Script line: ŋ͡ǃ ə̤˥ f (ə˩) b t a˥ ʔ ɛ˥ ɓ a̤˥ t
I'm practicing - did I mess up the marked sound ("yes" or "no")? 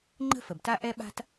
no